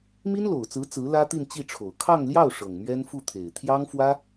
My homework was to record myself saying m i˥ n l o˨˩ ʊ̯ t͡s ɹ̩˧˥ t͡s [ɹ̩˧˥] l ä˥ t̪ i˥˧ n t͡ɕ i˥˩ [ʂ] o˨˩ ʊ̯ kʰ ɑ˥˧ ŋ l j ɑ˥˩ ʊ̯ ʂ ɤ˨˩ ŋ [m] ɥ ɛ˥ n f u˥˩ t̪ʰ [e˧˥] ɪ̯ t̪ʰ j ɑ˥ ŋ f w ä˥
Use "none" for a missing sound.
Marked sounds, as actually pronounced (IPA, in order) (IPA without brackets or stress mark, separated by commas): ɹ̩˧˥, ʈ͡ʂʰ, m, e˨˩